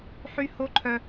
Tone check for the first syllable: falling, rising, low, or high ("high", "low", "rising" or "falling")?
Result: high